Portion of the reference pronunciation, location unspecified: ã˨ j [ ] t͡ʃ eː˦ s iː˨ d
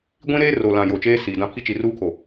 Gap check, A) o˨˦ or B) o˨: B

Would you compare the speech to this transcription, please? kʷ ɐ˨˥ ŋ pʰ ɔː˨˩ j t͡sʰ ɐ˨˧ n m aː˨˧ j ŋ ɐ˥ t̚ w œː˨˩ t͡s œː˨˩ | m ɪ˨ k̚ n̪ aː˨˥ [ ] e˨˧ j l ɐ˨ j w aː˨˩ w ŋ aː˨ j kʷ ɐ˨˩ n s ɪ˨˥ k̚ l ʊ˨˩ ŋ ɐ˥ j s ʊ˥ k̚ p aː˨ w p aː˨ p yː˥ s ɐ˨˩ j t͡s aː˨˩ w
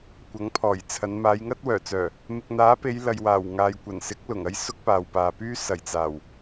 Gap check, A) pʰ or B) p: B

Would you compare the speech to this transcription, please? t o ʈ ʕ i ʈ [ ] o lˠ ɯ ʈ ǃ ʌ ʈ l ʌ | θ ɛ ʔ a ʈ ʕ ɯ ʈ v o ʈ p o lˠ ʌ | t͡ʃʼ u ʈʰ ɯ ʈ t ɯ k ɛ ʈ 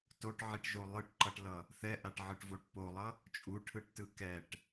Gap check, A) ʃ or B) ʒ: B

